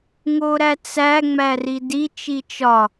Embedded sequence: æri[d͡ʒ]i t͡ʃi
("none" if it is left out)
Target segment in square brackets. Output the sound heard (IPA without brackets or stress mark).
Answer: d